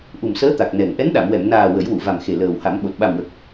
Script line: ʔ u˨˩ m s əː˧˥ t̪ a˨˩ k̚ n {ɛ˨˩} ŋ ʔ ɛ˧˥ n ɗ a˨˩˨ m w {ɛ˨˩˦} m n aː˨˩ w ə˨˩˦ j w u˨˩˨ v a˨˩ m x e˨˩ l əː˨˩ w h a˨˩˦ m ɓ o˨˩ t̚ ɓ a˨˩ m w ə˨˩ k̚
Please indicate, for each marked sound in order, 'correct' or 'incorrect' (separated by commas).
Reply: correct, incorrect